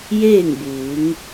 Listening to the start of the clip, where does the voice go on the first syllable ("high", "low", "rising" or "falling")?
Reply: falling